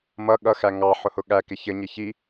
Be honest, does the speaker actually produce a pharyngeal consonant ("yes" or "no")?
yes